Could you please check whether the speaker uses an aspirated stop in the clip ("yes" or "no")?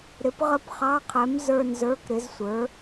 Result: yes